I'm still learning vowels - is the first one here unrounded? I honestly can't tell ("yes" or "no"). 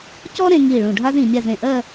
no